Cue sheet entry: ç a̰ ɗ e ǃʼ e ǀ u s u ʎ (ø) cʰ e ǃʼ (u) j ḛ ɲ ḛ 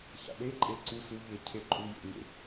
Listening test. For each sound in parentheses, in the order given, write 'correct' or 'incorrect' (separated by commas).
incorrect, correct